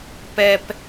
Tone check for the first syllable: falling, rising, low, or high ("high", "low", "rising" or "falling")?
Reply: high